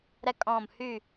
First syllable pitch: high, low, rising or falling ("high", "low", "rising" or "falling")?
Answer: high